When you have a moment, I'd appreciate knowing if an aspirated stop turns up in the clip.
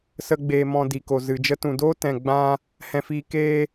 no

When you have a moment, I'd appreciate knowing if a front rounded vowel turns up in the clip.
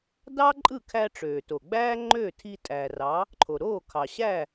yes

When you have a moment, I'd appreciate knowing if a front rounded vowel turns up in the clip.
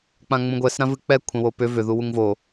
yes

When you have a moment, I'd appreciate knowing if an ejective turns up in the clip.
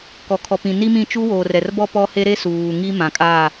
yes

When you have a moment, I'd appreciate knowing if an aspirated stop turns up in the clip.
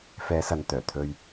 yes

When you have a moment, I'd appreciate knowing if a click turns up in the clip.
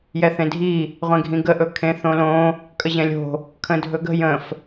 no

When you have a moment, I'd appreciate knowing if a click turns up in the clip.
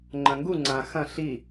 yes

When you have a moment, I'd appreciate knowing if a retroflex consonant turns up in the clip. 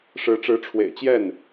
yes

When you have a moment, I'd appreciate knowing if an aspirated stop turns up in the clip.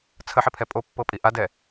yes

